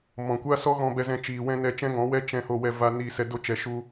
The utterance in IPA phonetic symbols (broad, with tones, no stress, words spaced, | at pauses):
mɔ̃˨kʷa˦sɔ˦ ɣɔ̃˧bɛ˧zɛ̃˧t͡ʃiː˨ wɛ̃˦nɛ˧ t͡ʃɛ̃˦ŋɔ̃˨˦ wɛ˦t͡ʃɛ̃˧ho˧ wɛ˧ va˧ niː˧sɛ˧ do˦t͡ʃɛ˧ʃu˦